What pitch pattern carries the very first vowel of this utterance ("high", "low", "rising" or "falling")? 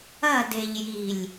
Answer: falling